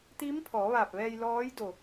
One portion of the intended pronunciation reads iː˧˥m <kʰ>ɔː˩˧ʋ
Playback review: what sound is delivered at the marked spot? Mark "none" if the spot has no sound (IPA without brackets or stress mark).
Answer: pʰ